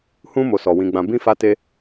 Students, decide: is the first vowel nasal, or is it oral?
nasal